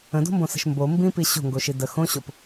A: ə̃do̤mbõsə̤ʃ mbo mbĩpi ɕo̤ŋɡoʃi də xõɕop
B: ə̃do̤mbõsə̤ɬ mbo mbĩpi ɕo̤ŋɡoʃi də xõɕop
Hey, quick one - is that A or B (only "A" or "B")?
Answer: A